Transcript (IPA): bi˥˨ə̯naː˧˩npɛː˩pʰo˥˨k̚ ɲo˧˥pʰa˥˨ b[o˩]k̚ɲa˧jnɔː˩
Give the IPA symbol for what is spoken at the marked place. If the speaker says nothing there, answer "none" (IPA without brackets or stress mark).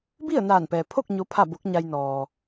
o˧˥